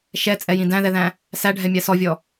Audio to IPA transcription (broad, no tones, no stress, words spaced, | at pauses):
ʃɛt͡sʼɛjĩ dæ̃ðɛðæ̃ | sæɖʱɛmʲa sɔvʲɔ